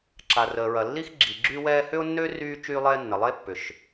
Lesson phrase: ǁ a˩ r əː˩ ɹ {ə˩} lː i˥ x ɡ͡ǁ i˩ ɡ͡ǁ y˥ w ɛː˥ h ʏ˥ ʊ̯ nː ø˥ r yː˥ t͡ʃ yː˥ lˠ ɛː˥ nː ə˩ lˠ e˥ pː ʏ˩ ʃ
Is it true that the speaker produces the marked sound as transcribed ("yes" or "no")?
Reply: no